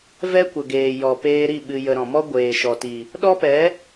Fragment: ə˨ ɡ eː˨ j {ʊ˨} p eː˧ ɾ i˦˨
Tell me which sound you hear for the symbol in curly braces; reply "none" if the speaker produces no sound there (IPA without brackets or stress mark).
ɔ˨